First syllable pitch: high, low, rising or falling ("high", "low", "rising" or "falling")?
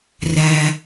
low